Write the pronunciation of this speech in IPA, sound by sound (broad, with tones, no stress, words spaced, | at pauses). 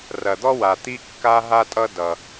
rɐ˩d̪ɔ˥wa˩ t̪i˥kːa˥ɦa˥tʼʌ˥ dʌ˩